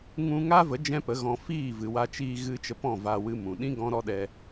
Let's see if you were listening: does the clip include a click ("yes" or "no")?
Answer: no